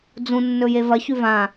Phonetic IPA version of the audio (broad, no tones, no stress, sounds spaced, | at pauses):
d͡z ũ nː ɵ j e v ɐ ç ʉ v ã